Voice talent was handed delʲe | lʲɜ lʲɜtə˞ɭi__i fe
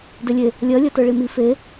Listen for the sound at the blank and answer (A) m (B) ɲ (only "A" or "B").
A